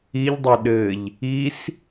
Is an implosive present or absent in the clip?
present